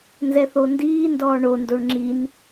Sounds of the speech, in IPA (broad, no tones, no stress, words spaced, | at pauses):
nzɛθondiːndɔː ɳondoɳ ŋ͡ǁin